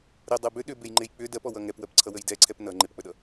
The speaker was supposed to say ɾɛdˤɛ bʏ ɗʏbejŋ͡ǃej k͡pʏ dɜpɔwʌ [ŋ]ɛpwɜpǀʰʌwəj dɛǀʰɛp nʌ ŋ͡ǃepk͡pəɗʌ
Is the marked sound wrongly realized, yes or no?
no